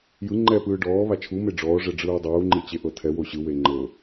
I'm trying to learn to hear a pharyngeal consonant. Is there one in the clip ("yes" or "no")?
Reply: no